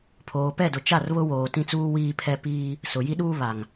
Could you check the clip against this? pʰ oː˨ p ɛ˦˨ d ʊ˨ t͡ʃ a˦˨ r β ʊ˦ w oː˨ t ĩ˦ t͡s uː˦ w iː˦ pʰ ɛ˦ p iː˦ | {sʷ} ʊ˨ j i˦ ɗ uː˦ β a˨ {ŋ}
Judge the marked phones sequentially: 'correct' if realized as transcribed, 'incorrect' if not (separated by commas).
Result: incorrect, correct